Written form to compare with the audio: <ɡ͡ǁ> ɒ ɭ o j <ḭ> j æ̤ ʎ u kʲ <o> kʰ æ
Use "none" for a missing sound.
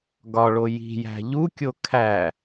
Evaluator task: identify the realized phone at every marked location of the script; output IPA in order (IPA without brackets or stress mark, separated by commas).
ɡ, i̤, o